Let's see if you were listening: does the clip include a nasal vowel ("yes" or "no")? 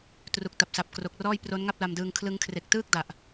no